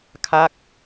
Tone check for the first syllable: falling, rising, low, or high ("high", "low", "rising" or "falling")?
falling